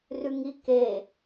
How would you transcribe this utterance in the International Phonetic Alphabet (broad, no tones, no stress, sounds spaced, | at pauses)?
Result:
r ʉ ŋ i k e